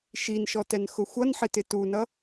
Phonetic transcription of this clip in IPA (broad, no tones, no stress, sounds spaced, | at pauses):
ʃ i n ʃ ɔ t ɛ n x ʊ xʷ ʌ n ħ ɪ t ɪ t u n ʌ